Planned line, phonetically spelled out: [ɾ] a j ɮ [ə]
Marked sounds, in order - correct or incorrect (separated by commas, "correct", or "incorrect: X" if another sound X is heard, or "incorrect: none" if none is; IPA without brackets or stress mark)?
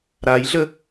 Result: correct, correct